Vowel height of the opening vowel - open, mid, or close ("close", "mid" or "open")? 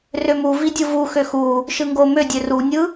mid